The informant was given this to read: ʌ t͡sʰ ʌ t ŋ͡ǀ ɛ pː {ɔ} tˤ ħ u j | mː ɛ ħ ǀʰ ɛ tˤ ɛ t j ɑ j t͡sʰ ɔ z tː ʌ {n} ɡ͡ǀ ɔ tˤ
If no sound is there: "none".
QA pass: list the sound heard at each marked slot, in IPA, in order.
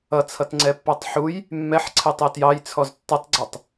ɑ, tˤ

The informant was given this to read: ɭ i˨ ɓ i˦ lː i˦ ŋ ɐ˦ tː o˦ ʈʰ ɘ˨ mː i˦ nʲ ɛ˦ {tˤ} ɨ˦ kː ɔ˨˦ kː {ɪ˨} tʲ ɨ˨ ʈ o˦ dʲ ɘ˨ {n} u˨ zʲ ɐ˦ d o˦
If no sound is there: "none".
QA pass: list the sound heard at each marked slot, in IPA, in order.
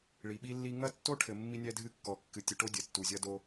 dʱ, ɨ˨, tː

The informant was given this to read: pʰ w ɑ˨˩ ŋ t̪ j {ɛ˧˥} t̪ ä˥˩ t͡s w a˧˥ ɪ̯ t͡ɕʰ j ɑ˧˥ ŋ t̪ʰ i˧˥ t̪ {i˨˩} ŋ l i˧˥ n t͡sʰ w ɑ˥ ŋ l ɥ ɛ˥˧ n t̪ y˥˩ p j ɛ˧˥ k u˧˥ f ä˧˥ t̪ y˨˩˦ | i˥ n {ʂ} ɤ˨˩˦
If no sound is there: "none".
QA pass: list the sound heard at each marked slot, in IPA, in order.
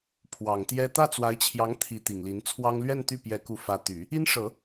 ɛ˥, i˨˩, ʂ

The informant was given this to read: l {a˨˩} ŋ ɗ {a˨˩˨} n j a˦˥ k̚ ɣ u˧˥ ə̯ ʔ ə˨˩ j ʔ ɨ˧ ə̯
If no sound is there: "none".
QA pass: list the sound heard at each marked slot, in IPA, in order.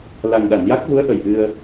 a˨˩, a˨˩˨

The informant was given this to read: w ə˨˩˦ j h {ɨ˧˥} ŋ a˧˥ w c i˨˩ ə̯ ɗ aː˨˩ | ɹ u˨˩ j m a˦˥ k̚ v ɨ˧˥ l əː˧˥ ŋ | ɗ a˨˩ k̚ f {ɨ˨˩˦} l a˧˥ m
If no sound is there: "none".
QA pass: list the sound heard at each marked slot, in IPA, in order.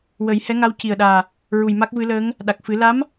ɛ˧˥, ɨ˨˩˦

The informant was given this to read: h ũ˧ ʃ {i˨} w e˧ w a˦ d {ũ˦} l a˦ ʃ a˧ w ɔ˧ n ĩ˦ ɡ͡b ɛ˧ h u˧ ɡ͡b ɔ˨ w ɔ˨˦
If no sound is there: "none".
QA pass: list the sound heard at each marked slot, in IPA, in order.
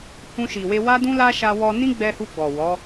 i˨, ũ˦

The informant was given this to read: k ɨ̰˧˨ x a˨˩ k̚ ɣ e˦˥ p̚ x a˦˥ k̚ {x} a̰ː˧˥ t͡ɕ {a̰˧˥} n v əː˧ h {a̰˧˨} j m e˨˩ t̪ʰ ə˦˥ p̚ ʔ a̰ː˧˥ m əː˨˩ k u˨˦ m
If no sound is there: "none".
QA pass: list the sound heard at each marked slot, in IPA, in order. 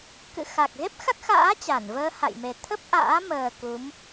x, a˧˩, a̰˧˨

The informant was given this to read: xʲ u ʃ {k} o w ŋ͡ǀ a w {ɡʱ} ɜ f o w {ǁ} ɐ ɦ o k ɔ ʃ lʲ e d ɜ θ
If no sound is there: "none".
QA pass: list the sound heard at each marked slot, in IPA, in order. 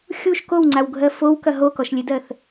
k, ɡʱ, k

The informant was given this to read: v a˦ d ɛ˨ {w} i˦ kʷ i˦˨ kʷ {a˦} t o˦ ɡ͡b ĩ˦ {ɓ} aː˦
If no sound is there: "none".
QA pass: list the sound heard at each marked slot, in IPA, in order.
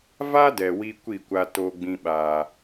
w, a˦, ɓ

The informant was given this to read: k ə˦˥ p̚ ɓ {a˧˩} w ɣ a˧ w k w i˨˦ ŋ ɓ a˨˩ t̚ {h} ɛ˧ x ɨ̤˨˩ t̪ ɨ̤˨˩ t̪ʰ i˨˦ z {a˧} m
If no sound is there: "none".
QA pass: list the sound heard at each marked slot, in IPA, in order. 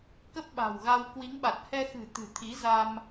a̤˨˩, h, a˧

